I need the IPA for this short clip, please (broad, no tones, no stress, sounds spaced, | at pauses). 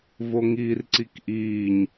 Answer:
v o ŋ iː r ǀ i k ʔ iː ɲ